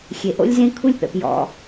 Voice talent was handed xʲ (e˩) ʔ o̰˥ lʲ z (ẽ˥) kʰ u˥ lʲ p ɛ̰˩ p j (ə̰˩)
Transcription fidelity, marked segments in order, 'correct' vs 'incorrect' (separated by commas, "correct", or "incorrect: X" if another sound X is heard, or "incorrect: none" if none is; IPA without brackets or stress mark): correct, correct, incorrect: ɔ̰˩